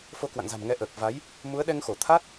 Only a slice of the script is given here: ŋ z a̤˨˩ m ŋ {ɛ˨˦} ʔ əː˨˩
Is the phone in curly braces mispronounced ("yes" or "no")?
no